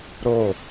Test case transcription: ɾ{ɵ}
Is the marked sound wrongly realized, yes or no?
yes